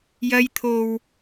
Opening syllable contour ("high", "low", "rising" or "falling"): high